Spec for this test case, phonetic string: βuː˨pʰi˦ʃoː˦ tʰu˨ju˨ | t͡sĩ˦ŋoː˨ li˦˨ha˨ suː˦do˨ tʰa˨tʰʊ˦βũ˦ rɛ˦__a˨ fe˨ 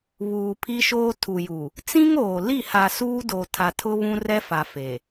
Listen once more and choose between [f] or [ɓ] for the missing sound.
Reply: f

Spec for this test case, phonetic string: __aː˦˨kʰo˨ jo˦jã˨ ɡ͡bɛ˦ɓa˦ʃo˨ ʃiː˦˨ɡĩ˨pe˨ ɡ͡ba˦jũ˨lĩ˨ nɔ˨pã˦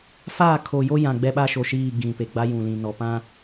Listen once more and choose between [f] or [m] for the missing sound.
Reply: f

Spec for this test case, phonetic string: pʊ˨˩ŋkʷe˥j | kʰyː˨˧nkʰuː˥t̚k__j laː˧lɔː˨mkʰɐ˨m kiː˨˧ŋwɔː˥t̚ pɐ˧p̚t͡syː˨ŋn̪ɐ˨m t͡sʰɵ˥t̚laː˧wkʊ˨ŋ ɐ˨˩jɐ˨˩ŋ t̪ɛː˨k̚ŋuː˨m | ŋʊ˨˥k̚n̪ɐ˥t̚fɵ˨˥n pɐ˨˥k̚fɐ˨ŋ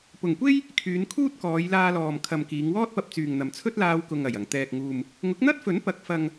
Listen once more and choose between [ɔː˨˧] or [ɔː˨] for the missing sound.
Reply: ɔː˨˧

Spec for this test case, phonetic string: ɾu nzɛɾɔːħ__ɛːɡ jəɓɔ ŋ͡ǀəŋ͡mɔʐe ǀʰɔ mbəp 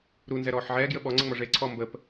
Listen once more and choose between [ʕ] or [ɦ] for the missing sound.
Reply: ʕ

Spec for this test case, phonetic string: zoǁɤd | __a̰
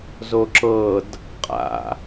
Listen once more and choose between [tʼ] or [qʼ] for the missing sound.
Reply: qʼ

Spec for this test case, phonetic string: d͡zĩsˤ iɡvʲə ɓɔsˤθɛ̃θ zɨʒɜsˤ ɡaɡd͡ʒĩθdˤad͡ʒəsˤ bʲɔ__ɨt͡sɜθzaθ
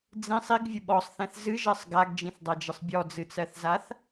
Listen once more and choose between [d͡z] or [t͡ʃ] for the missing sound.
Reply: d͡z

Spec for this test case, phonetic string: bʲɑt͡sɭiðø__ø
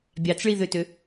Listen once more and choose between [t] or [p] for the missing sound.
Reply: t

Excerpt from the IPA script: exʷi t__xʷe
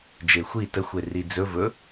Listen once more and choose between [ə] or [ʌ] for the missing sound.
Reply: ə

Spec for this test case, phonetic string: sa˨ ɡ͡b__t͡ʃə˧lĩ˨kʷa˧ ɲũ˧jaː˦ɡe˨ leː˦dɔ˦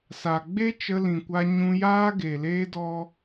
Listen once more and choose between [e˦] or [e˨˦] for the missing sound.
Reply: e˦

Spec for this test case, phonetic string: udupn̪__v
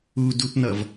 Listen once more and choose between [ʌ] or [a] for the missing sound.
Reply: ʌ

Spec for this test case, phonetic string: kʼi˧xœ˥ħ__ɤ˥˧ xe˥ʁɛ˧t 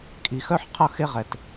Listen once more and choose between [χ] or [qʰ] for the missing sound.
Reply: qʰ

